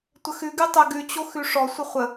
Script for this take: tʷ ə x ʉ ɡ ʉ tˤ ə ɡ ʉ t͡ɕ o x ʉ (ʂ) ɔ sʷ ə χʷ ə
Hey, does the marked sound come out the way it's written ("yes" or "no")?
yes